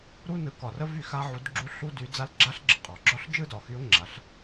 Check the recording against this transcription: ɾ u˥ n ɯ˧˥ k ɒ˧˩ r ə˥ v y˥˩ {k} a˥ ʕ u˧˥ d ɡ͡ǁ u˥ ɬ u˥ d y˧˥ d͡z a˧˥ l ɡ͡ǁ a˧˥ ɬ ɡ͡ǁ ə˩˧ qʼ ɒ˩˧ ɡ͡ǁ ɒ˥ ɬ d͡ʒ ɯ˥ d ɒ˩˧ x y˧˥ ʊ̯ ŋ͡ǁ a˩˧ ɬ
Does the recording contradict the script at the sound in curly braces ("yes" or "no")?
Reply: yes